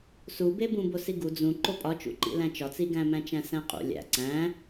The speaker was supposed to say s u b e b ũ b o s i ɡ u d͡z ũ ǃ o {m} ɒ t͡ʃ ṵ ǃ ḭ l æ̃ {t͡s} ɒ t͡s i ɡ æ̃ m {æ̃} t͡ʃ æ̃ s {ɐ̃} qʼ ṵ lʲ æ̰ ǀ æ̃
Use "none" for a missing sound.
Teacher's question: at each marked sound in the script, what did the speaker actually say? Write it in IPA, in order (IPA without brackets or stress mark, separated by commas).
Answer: pʼ, t͡ʃ, æ̃, æ̃